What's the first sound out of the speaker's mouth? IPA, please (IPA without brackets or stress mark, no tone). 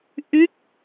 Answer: ʔ